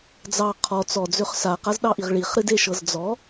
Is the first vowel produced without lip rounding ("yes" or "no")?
yes